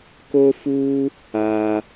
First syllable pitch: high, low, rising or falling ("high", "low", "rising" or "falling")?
high